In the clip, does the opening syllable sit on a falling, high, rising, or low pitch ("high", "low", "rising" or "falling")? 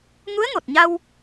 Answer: rising